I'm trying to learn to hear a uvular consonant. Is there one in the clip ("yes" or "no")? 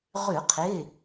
yes